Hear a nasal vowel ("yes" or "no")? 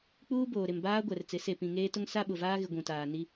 yes